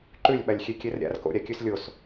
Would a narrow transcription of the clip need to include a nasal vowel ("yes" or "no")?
no